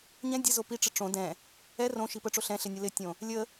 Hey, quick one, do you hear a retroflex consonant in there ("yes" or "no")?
yes